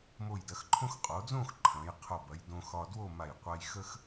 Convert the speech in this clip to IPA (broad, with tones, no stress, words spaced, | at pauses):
mo˧˩jdɐ˩˧xǃʰõ˥x qʼo˩˧d͡zõ˥˧x ǃʰɐ̃˩˧jqʰo˧˩bɐ˩˧jdõ˧ xɒ˧dwo˥˧ma˧˩j qʷa˧jxə˥x